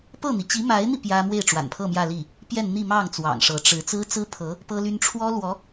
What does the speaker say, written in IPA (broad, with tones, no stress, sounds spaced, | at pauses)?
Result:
p ɤ˥˩ n̪ i˩ t͡ɕ i˧˥ m a˧˥ ɪ̯ n̪ i˧ p j ä˥ m w e˥˩ ɪ̯ ʈ͡ʂ w a̰˨˩ n pʰ ɤ˥˧ m j ä˥˧ l i˥˩ | p j ɛ˥˧ n n̪ i˥˧ m ɑ˥˩ ŋ t͡s w ɑ̰˨˩ ŋ ʂ ɤ˧˥ ʈ͡ʂ ɻ̩˧˥ t͡s ɹ̩˥ t͡s ɹ̩˥ pʰ ɤ˧˥ | p ɤ˥ l y˥ n ʈ͡ʂʰ w ɔ˥ l w ɔ˧˥